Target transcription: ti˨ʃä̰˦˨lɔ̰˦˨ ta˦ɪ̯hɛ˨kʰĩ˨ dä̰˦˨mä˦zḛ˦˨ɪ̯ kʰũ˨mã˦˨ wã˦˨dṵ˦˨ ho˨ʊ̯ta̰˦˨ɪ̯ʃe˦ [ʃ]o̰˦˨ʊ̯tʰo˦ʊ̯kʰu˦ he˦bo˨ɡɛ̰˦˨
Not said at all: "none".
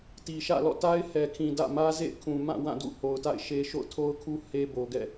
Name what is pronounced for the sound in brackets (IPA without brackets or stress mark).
ʃ